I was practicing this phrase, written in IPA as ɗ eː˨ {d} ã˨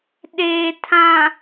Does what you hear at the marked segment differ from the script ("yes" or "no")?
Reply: yes